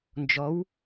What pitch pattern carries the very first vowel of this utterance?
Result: rising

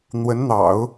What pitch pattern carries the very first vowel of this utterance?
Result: rising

